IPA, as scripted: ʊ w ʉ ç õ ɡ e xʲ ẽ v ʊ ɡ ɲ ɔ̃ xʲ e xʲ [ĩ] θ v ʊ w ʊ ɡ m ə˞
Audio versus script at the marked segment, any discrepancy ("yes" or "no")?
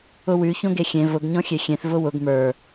yes